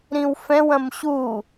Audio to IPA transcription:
ɾĩwfɛ̃ wɐ̃mɕu

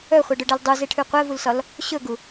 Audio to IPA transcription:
œχʷeɖɵɖɛl dˤuzeʈʰʉ qʷɛvulsɒl | ɕɵɡu

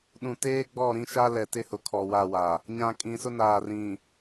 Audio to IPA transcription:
ɗũ˨teː˦ ɡ͡bɔ˦˨ɾĩ˦ʃa˦ lɛ˨tɪ˦hʊ˨ kʰɔ˨wa˦˨ wa˨ | ɲã˨kʼĩ˨sʊ˦naː˨ rĩ˨

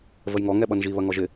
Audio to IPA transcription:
vəjŋɔ ŋɛɓʌnʒi βɐŋɔʒɪ

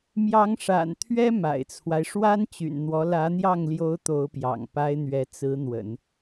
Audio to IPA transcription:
mjɑ˧˥ŋʂa̰˨˩nt̪ʰɥɛ˥ ma̰˨˩ɪ̯t͡sʰwa˦ɪ̯ ʂwa˥nt͡ɕy̰˨˩nn̪wɔ˧˥ lä˧˥n̪jɑ˥˩ŋljo˧˥ʊ̯ t̪o˧˥ʊ̯pjɑ̰˨˩ŋpa˥ɪ̯n̪ɥɛ˧˥ t͡sɹ̩˧˥ n̪wə̰˨˩˦n

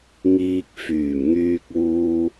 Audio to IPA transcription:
ŋiː˧k̚fyː˨˩mŋyː˧k̚wuː˧

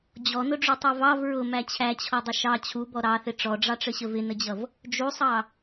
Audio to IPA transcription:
d͡ʑɔnʊɖ͡ʐutˤɛ vɑv ɹʊmæ t͡ɕʰæt͡ɕʰɔdˤə ʃɑ t͡ɕʰubɔ ɾɑθɪ ʈ͡ʂɔɖ͡ʐɑʈ͡ʂəɕə vɪnəd͡ʑʌv | d͡ʒusˤɑ

